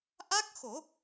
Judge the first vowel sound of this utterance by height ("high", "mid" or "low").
low